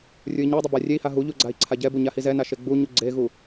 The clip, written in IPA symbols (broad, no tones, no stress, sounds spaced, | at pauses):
rʲ u i̯ ɲ e dˤ i b a rʲ e i̯ h a ɦ u ʎ u ɡ͡ǀ a i̯ ǀʰ a ɟ ɛ b u ɲ a h i z ɛ n a ʃ e ɡ͡b u ɲ u ɡ͡ǀ e ɣ u